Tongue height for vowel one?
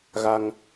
low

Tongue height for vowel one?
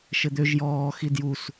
mid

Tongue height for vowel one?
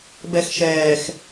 mid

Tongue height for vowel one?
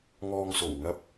mid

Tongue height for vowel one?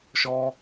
mid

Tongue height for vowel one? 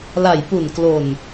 low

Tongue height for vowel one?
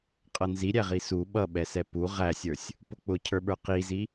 mid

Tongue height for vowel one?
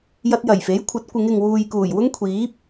low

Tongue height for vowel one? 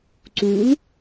high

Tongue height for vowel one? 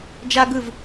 low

